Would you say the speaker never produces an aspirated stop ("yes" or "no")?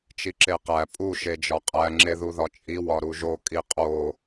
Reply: yes